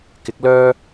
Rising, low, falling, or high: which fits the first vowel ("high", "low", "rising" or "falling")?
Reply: rising